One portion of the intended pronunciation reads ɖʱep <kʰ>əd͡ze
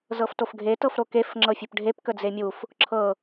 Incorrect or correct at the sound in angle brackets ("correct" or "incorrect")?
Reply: incorrect